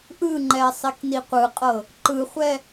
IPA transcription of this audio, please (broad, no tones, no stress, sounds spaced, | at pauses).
ʔ ɯ ŋ͡ǃ ɛ sˤ i k n i qʷ ɯ qʼ ɤ | ǃ ɯ χʷ ɛ